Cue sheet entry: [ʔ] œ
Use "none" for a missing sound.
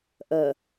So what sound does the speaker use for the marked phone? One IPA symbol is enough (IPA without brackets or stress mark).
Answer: ʔ